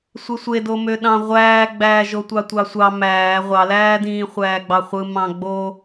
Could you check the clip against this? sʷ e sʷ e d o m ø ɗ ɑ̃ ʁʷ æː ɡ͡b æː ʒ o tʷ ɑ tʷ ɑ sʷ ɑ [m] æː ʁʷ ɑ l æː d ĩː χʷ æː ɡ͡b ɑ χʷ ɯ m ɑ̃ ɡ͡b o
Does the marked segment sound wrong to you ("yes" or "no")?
no